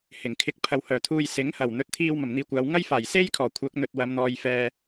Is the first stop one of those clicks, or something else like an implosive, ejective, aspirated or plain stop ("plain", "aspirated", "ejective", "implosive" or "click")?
aspirated